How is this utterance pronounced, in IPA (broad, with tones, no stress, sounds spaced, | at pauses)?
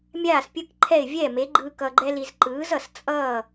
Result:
mʲ aː˥˩ s pʲ ɯ˥˩ k ǃʰ ɛ˥˩ ɪ̯ vʲ ɛ˥˩ m e˩˥ ɡ͡ǃ ɯ˧ k ʌ˧ ɡ͡ǃ ɛ˥ l i˧ z ǃ ɯː˩˥ z ʌ˩ s t͡sʼ ʌː˥˩